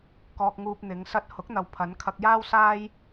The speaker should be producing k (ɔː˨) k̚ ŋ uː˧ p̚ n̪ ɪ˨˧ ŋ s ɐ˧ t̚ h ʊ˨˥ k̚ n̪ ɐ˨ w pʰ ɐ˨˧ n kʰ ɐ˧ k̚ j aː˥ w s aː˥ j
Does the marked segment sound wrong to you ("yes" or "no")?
yes